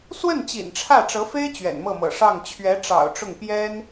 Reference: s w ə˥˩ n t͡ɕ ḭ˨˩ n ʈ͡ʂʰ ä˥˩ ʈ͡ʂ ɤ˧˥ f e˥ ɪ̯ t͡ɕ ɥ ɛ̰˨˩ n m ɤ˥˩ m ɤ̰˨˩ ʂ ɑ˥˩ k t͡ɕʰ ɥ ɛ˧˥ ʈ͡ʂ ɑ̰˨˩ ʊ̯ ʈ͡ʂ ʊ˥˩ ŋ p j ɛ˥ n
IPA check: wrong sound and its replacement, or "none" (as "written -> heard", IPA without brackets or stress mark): k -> ŋ